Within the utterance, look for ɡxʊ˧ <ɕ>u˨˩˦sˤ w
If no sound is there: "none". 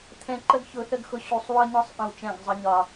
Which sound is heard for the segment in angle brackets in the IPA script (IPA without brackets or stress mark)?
ɕ